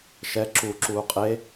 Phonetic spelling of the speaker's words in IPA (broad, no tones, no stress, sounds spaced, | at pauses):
ʃ ɛ ǁ u ǁ uː qʼ e